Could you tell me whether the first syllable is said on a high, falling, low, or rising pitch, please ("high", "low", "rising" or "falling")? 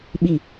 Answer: falling